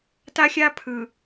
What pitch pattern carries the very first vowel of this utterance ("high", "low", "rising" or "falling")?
high